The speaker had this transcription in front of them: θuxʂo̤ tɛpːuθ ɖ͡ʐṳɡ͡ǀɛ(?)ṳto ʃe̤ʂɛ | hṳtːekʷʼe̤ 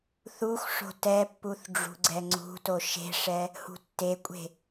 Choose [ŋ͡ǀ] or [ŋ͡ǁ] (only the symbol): ŋ͡ǀ